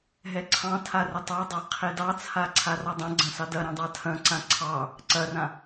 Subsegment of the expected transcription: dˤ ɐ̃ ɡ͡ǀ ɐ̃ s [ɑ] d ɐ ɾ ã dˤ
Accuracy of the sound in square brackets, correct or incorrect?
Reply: correct